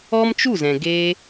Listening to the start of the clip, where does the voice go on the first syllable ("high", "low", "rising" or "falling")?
high